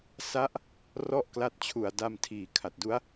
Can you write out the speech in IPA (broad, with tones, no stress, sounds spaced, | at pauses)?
s a˦˥ ʔ | r ɔ˥˩ ʔ k l a˦˥ t̚ t͡ɕʰ u˨˩ a̯ d a˧ m tʰ iː˨˩ kʰ a˨˩ t̚ d u˦˥ a̯